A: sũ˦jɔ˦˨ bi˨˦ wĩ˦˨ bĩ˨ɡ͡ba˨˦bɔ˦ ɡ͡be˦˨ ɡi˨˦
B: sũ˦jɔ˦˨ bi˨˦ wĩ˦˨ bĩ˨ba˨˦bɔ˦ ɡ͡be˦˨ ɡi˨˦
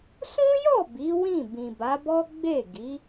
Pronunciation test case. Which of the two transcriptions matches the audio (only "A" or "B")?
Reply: B